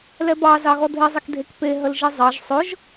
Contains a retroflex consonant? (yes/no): no